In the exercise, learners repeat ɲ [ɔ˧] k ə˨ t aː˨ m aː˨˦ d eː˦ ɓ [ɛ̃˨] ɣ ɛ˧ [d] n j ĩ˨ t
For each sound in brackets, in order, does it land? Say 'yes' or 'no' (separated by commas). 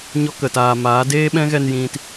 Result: no, no, no